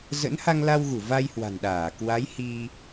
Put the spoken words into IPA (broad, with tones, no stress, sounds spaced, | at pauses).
z ə̰˧˥ n h a˧ ŋ l a˧ w ɣ u˧˩ v a˧ j h w a̤˨˩ n ɗ aː˧˩ k w a˨˦ j h i˧